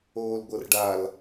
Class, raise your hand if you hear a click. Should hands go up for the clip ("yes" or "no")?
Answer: no